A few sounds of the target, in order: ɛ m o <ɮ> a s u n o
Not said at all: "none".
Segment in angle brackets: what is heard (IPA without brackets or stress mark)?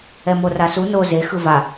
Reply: r